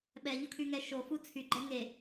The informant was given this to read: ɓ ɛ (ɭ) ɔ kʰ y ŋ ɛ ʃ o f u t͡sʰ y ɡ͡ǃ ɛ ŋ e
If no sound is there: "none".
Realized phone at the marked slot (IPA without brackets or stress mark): ʎ